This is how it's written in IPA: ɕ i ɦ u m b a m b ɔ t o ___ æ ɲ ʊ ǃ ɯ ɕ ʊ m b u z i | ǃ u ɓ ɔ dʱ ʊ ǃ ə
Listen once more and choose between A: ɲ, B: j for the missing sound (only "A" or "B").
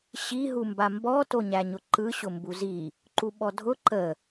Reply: A